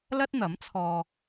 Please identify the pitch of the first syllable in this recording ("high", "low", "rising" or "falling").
high